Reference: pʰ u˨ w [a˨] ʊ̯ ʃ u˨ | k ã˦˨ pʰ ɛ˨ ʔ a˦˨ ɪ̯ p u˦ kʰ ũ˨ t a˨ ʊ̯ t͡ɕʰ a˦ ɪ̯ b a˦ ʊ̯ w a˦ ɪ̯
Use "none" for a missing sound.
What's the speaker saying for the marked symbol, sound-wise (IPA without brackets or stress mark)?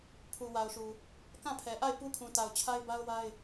a˨